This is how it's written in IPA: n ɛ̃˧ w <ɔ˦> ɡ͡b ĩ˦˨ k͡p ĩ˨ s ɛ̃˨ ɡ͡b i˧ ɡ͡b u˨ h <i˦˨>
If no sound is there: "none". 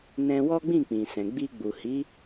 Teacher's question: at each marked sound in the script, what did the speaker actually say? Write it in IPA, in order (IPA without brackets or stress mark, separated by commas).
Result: ɔ˦, i˨˦